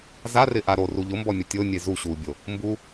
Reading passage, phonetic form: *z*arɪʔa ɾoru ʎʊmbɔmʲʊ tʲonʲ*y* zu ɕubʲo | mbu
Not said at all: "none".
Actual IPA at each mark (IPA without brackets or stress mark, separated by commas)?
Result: z, e